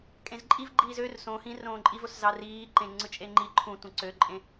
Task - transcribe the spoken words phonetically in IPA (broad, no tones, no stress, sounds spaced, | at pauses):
kʼ ẽ z ǃʼ i v ɡ͡ǃ iː z ø r s õ h ĩ r õː ǃʼ i v o s z ɑ r iː ǃ ẽ ŋ͡ǀ ɯ t͡ʃʼ e ŋ͡ǃ i ǃʰ ũ tʷ ĩ ǀ ø ǃʼ ẽ